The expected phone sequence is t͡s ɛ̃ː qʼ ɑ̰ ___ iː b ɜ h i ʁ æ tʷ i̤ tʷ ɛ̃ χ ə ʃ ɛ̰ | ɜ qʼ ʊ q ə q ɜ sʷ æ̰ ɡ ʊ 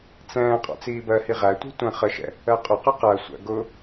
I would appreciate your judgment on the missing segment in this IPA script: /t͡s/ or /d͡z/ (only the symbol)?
t͡s